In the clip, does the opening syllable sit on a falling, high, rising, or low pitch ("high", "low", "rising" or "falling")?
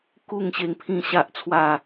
falling